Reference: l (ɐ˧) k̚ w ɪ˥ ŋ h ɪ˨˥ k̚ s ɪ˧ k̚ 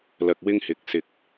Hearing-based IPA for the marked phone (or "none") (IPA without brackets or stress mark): ɐ˧